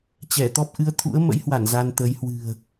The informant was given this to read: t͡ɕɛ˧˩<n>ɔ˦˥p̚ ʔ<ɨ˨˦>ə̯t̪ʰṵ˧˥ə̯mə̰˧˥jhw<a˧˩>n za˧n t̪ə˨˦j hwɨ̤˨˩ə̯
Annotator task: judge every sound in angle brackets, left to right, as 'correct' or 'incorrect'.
incorrect: t̪, correct, correct

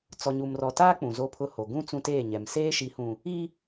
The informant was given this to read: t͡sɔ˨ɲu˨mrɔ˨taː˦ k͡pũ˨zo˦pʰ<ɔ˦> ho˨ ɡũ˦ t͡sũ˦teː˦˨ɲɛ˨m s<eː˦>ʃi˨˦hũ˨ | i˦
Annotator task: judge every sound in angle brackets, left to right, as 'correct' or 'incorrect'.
incorrect: ʊ˦, correct

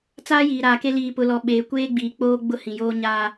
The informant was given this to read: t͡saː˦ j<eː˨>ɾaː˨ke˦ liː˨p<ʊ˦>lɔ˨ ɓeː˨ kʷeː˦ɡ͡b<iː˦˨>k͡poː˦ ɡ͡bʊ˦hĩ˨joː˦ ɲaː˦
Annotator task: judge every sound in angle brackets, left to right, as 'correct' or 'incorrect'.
incorrect: iː˨, incorrect: ʊ˨, incorrect: iː˨

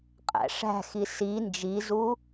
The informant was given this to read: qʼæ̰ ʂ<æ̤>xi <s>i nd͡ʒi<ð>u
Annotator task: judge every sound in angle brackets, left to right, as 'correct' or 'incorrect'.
correct, correct, incorrect: z

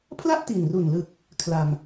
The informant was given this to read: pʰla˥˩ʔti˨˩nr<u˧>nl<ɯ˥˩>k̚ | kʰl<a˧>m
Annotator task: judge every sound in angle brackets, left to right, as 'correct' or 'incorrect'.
incorrect: u˨˩, incorrect: ɯ˨˩, correct

